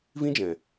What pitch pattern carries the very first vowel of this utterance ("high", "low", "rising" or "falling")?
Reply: high